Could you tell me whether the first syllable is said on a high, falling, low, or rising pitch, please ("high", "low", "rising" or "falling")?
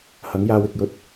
rising